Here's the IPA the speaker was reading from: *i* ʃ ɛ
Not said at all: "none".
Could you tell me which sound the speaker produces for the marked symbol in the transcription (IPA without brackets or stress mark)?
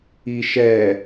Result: i